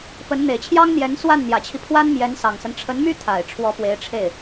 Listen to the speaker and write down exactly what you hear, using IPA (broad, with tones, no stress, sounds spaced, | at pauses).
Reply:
p ə˧˥ n n̪ e˨˩ ɪ̯ t͡ɕʰ j ɑ˥ ŋ n̪ j ɛ˧˥ n s w a˥˩ n n̪ j ä˨˩ t͡ɕʰ i˦ pʰ w a˥ n m j ɛ˧˥ n s ɑ˨˩ ŋ s ə˦ n ʈ͡ʂʰ ə˧˥ n m y˥ t̪ʰ a˨˩ ɪ̯ ʈ͡ʂʰ w ɔ˧˥ p w e˧˥ ɪ̯ ʈ͡ʂʰ e˥˩ ɪ̯